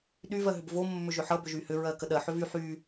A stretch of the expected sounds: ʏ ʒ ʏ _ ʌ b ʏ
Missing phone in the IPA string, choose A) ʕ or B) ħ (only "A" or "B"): B